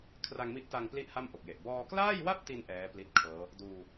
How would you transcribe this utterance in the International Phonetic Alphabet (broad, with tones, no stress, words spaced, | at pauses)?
kʰra˧ŋmi˦˥ʔta˧ŋ pli˥˩ʔha˥˩mʔo˨˩k̚je˨˩ʔ bɔː˧klaː˥˩jwa˥˩p̚ti˧n ʔɛː˦˥ pli˦˥t̚kʰɤː˦˥ | duː˧